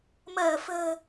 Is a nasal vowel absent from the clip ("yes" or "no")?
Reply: yes